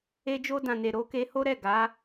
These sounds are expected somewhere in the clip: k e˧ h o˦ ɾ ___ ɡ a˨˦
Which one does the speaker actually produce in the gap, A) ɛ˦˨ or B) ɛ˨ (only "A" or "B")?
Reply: A